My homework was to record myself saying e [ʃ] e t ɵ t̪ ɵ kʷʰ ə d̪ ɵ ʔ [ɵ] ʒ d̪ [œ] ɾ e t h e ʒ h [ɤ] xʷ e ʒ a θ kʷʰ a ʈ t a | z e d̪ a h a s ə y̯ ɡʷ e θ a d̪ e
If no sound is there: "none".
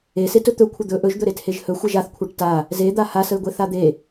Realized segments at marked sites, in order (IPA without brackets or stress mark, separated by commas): s, ɵ, ɵ, ɵ